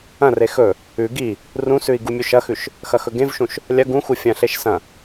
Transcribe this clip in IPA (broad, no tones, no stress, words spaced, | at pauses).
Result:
ɐ̃re xɵ | ʉ ɡi | rũsʉi̯ ɡumʲuʃɐxʉʃ | xɐxɵɡẽvʃũʃ | lʲɐ ɡũxu fʲɐ̃ɬeʃ sɐ̃